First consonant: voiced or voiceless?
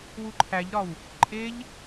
voiced